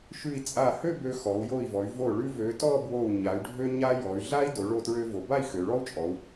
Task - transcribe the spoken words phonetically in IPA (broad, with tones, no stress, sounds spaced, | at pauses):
ʃ ʉ˧˩ i̯ t͡sʼ a˧˩ h ø˥˧ b ø˧ x ɔ˩˧ u̯ j o˧˩ i̯ v ɔ˩˧ y̯ v o˧˩ ɭ ʉ˧ v ø˩˧ t ɔ˥˧ b w o˧˩ u̯ ɲ a˩˧ y̯ ɖʱ ø˧ ɲ a˧ j ɔ˩˧ y̯ ɮ a˥ i̯ d o˩˧ ɭ o˧˩ t ɹ ø˧ v o˩˧ b a˥˧ i̯ x ø˩˧ ɭ ɔ˥ u̯ t͡ʃʼ ɔ˩˧ u̯